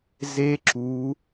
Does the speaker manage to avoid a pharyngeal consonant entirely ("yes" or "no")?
yes